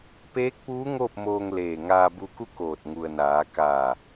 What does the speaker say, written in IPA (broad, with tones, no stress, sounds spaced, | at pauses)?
p eː˧˥ k̚ p uː˧˥ ŋ oː˥˨ p̚ m oː˧ ŋ l eː˧˩ ŋ aː˧ b u˧ k u˥˨ k oː˧˩ t̚ ŋ u˩ ə̯ n aː˩˧ k aː˧˩